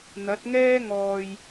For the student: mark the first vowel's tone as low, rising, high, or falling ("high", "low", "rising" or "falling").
rising